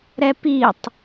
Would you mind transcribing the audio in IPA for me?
ɾ ɛ p i tˤ

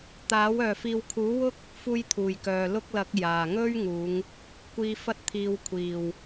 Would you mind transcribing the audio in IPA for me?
t̪ aː˨˥ w œː˨ f iː˧ w kʰ uː˨˥ w ʊ˥ k̚ | f uː˧ j t̪ʰ uː˨˩ j k œː˨ l ʊ˥ k̚ l ɐ˨˥ k̚ j aː˨˩ ŋ ɵ˥ ɥ ŋ uː˨˧ ŋ | kʷ iː˧ f ɐ˥ t̚ t̪ʰ iː˧ w kʷʰ iː˨˩ w

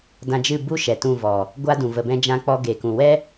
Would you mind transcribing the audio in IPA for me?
d ã˧ d͡ʒ ɨ˦˨ b u˦ ʃ ɛ˨ t ũ˦˨ v ɔ˨ | ɡʷ a˦ d ũ˨ v ə˨ b ɛ̃˧ d͡ʒ ã˧ k͡p ɔ˧ ɡ e˨ k ũ˨ w ɛ˦

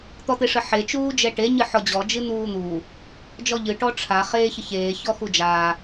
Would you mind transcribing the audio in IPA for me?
t̪ ɔ t̪ e ʂ ə ħ e t͡ʃ uː d͡ʒ ɛ ʈ e ɲ ɨ ħ ɔ d͡ʑ ɔ d͡ʒ ɨ n̪ uː n̪ uː | d͡ʒ ɔ ʎ ɨ ʈ ɔ ʈ͡ʂʰ a χ eː ç ə ç eː ç ɔ x u d͡ʒ aː

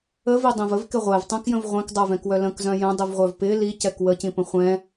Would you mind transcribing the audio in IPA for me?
ə v i dˤ ĩ v ə v k ɪ ʁʷ ɛ v tˤ ɛ̃ k j ə̃ v ʁʷ ɛ̃ k dˤ œ v ɛ̃ k w œ l ə̃ k z œ̃ j ə̃ dˤ i v ʁʷ œ v p ɪ l i c ɛ k w ə c ĩ p ə̃ χʷ ɛ̃

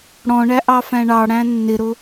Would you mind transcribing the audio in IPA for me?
ɽ ɔ̃ ɳ æ ʔ ɑ f æ̃ ɳ ɑ ɽ æ̃ nː ɪ ɾ ʊ

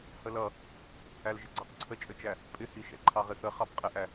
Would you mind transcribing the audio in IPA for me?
h ə l ʌ | æ l ʒ ɪ ɡ͡ǀ ʌ q ǀʰ ə t͡ʃʼ ə t͡ʃ æ | pʼ ɪ h i ʃ ɛ̰ ǃʰ ɑ ʁ ɪ θ ə χ ɑ b qʼ ɪ ʔ æ

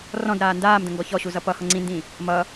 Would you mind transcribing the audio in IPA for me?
r ɔ̃ d ɾ aː n d aː m d ə̃ ŋ ɡ ɔ ç ɔ ɕ u z ʌ p ʌ h ʌ ŋ͡ǀ ĩ n d ĩ | m ʌ

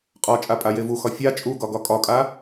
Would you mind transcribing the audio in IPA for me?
qʼ ɒ t͡ʃʼ a pʼ a j e v u x ɒ fʲ a t͡ʃʼ u ɡ ɒ ɡ ɒ kʼ ɒ kʼ a

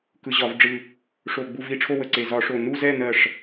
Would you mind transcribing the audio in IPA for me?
k ɯ˨˩ ʑ ɒ˧˩˧ v ɖ͡ʐ ɯ˨˩ | ʂ o˨˩ ɡ͡b u˨˩ v i˨˩ ʈ͡ʂʰ o˦˨ w ə˨˩ ǀ e˨˩ z ɒ˧˩˧ ʂ o˨˩ n u˦˨ z ɛ˦˨ n ɜ˦˨ ʂ

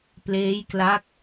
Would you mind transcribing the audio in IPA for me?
p l eː˦˥ j k l a˦˥ k̚

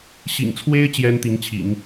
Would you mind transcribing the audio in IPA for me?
ɕ ḭ˨˩ ŋ t͡sʰ w e˥ ɪ̯ t͡ɕ j ɛ˥ n t̪ i˧˥ ŋ t͡ɕʰ ḭ˨˩˦ ŋ

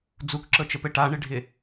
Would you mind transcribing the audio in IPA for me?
d͡z u k ǁ ɤ t͡ʃ ə p ɘ ʈ a ɳ ɪ ɖʱ ɪ

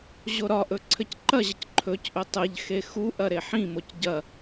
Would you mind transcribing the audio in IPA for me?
ʑ o ɾ ɒ ʔ ɵ ǀʰ ɘ c ǃ ɐ ʑ ə c ǃʰ ɵ c ʔ ɵ tˤ ɘ ʎ x e x u ʔ ɐ ɾ e ħ ĩ m o c ɟ ɐ

